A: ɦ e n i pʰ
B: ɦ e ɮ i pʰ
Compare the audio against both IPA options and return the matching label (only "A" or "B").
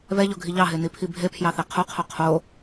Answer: A